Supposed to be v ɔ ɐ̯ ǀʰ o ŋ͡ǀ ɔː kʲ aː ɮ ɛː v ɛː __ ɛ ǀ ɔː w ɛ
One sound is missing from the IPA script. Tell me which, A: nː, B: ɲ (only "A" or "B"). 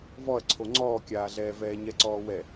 B